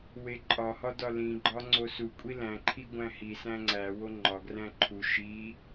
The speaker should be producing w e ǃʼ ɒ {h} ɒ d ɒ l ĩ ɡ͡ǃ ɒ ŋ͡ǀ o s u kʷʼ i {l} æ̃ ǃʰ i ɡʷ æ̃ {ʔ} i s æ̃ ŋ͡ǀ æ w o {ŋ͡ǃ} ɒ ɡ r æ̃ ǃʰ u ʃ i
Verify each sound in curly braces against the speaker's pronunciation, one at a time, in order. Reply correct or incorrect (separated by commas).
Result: correct, correct, incorrect, correct